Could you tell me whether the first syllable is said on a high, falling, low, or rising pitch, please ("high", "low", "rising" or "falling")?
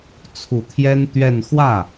low